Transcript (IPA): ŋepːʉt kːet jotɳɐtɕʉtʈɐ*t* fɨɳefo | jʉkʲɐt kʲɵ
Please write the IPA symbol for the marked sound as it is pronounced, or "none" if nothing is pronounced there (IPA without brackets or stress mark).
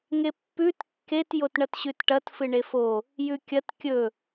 t